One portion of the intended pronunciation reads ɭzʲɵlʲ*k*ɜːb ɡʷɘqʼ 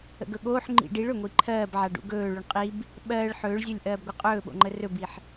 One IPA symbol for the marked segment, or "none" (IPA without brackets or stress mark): ʔ